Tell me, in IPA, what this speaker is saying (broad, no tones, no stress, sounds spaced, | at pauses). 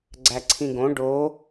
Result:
ɡ͡ǀ æ ǀʰ ĩ ɡ õ ɖ o